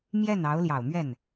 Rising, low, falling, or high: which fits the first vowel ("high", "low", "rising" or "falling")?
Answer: falling